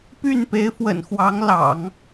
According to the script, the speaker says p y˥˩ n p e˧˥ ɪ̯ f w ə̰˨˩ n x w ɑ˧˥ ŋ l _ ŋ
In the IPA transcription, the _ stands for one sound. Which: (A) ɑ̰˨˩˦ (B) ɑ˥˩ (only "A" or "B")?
A